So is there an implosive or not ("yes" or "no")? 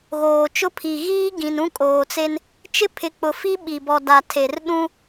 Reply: yes